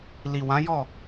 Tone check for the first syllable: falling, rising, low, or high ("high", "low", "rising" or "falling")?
low